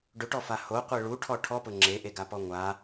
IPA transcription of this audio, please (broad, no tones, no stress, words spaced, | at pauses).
ɖʊʈɔfa hoqʷe ɭuʈʰɔ ʈʰɔpʊ ŋ͡ǁeʔeɡapɔ ŋʷa